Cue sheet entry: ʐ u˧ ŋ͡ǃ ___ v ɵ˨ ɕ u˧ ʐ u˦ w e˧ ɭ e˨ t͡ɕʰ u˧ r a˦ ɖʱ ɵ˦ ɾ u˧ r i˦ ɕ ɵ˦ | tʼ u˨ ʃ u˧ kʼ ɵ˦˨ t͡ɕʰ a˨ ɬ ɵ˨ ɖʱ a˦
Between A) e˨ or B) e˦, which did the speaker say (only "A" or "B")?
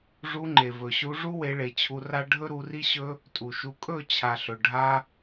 A